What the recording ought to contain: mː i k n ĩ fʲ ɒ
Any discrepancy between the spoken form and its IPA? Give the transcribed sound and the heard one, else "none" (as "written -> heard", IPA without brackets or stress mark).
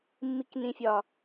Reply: none